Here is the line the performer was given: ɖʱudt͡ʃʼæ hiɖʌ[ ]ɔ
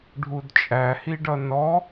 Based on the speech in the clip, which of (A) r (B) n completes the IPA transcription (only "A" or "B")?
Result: B